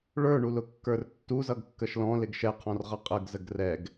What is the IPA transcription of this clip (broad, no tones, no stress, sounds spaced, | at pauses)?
ɭ ə˞ ɳ u l ʊ kː ə˞ r tː u z ʌ ɡ kː ə ʃ l ɔ̃ l ɪ ɡ ʃ ɛ qʰ ɔ̃ r ʁ ʌ qʼ ə ɡ z ə ɡ r ɛ ɡ